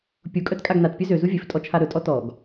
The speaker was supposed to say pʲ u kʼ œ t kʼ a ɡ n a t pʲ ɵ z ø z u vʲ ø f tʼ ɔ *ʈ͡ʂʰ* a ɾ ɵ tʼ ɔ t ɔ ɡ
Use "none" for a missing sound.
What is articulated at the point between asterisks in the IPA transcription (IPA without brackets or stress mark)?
t͡ʃʰ